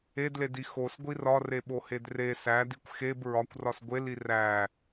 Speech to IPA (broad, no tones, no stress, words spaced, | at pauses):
edledi xosɡʷi rɒreɓohed re sædikʷ xeb ɹɒkʷrɒs ɡʷeli ræ